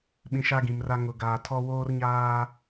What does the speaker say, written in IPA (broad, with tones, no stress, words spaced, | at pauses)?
ɓĩ˨ ʃa˦ɡĩ˨mra˦ ŋʊ˨ ɡaː˨tʰɔ˦ woː˦rɲaː˦